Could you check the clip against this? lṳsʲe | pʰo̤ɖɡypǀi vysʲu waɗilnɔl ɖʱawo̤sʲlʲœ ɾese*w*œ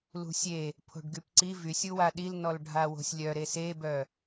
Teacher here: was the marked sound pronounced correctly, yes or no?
no